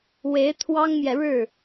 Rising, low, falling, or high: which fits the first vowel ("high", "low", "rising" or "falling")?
rising